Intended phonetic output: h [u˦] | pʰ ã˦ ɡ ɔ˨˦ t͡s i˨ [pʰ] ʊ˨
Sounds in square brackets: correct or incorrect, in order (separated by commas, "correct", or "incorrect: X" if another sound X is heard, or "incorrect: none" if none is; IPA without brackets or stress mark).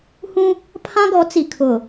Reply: incorrect: ũ˦, incorrect: kʰ